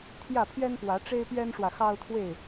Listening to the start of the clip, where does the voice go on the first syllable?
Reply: falling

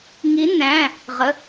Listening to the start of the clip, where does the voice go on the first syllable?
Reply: rising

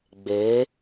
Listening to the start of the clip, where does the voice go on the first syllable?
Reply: rising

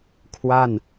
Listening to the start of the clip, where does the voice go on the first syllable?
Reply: falling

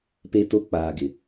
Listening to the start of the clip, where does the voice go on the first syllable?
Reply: high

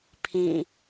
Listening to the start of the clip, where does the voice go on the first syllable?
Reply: falling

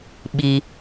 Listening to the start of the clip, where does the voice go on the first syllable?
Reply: low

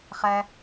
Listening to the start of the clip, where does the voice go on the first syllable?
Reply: high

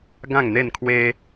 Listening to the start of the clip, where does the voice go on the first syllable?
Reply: falling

